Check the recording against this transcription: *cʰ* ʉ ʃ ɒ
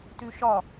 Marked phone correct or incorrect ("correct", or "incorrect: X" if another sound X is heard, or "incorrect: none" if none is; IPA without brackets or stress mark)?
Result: incorrect: t